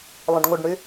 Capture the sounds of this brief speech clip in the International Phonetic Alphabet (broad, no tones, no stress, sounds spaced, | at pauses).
lˠ ə̃ ɖ ŋʷ ə ɖ ɳ y